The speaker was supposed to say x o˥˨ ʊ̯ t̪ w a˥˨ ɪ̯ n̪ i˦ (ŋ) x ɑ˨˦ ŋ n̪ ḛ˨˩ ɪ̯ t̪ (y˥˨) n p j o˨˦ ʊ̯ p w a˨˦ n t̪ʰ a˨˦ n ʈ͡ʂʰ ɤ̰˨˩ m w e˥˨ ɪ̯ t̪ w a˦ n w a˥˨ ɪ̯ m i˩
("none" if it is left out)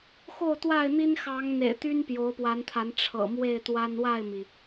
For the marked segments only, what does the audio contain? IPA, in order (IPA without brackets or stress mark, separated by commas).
n, y˦